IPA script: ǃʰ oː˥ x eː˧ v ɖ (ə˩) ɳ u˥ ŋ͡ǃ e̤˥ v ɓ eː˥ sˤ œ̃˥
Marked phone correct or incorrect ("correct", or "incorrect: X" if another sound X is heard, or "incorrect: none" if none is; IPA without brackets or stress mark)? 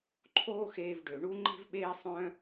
incorrect: ø˩